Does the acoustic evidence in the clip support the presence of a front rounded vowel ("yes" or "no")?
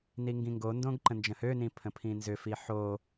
yes